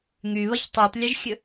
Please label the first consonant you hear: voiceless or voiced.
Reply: voiced